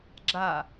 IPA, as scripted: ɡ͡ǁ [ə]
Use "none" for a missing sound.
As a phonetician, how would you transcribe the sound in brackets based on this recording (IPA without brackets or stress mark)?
a